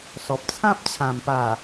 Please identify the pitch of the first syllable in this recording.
low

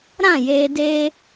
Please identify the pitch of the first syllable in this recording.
falling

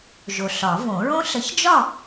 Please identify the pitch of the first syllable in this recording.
low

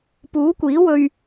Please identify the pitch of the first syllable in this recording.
rising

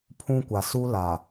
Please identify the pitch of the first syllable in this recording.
high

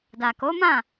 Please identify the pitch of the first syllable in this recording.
low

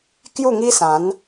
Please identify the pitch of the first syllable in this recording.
falling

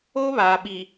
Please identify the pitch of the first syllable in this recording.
high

